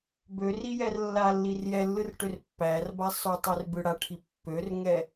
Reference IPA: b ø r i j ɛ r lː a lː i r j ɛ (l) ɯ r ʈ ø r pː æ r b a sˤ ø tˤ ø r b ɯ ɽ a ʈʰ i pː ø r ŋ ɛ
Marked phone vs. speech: incorrect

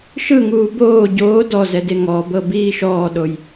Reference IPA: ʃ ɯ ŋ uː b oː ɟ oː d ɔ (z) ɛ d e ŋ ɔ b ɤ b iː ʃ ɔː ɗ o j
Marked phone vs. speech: correct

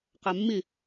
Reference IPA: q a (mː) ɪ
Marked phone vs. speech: correct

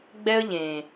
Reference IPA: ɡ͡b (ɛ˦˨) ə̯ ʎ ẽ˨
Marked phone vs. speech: incorrect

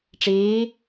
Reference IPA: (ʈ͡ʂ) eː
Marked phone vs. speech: correct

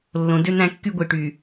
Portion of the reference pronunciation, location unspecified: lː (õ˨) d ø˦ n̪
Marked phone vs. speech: correct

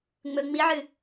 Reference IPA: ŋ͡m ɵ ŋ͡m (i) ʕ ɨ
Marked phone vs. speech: correct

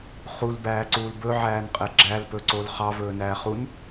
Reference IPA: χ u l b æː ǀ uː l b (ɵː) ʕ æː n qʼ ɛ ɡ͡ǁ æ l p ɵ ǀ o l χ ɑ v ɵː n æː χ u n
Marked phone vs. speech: incorrect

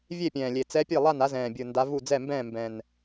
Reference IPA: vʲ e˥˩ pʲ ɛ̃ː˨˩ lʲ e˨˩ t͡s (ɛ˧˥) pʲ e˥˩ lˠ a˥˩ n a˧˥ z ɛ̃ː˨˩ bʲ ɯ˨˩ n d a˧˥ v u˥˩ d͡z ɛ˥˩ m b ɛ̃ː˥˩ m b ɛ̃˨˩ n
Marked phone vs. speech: correct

